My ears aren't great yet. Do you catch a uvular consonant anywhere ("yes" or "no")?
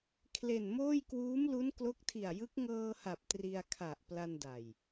no